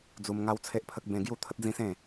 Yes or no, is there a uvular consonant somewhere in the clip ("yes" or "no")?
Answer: no